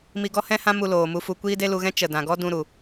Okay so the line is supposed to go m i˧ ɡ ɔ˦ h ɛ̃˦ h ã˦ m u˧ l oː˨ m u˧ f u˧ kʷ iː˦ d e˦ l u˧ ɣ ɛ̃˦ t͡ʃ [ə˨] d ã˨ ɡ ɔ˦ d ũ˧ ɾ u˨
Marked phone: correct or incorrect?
correct